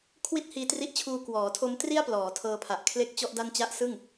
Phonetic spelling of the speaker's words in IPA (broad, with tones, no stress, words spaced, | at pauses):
kʰwi˥˩t̚hiː˧tri˦˥ʔt͡ɕʰuː˧ kwɔː˩˦tʰo˦˥m tri˥˩a̯plɔː˩˦ tʰɤː˧pʰa˨˩ʔ kʰle˥˩k̚t͡ɕɔ˥˩ʔda˥˩n t͡ɕa˦˥ʔsɯ˥˩ŋ